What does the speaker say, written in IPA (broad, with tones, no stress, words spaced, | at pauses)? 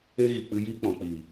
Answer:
e˦ɣi˨k͡pɨ˧jiː˦ k͡pɔ̃˨k͡piː˨